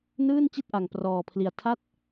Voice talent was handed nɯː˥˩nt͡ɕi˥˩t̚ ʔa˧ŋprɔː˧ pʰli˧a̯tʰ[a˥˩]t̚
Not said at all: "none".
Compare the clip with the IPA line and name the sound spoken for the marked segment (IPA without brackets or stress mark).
a˥˩